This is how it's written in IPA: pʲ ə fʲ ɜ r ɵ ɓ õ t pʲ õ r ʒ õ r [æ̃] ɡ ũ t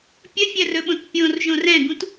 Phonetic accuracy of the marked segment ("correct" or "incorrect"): incorrect